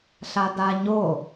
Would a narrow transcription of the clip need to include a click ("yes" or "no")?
no